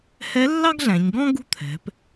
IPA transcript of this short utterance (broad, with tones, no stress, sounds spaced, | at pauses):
h ɛ˧˥ lː ɑ˥ ɡ ɮ æ̃˩˧ ɲ ɡ ɔ̃˥ ɡ ṳ˥ t̪ʰ ɛ̤˩˧ p